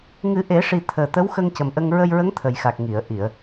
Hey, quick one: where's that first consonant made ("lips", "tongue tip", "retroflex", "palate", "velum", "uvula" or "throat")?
velum